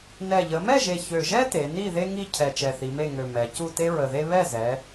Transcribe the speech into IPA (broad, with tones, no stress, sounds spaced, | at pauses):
n ɛ˨˩ ʎ ə˩˧ m ɛ˥˨ ʒ e˨˩ ç ø˨˩ ʒ ɛ˥ t e˩˧ n i˥˨ ð e˥ ŋ i˥˨ cʰ ɛ˨˩ t͡ʃ ɛ˨˩ θ i˩˧ m e˥˨ ŋ ø˨˩ m ɛ˩˧ c u˥˨ t e˥ ɹ ə˨˩ ð e˥ β ɛ˥˨ z ɛ˩˧